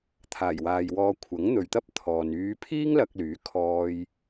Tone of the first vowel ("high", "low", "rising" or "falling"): low